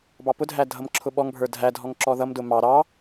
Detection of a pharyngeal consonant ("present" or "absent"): absent